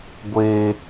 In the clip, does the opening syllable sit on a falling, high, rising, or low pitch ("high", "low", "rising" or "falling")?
high